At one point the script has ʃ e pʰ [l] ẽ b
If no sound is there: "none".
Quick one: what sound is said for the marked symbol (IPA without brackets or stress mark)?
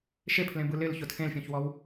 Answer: l